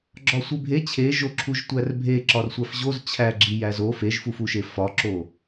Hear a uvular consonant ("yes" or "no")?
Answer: no